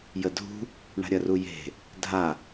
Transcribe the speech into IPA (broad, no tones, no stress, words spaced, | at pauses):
jədʱṳ | ɳa̤ɾʲɐruje̤ | dʱa